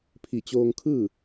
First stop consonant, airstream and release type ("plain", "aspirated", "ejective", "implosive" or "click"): aspirated